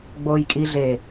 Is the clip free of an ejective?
no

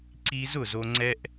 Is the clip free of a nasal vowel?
yes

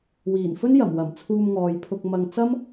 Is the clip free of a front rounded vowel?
yes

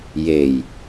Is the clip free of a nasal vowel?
yes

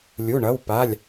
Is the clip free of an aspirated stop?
yes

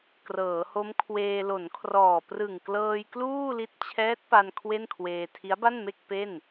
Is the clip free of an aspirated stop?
no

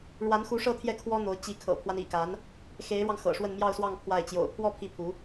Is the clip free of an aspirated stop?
no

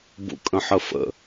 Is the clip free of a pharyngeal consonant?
no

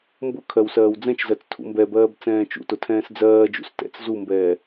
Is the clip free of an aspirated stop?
no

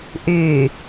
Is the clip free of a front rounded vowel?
no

